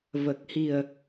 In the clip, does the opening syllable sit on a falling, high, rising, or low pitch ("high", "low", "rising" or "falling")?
low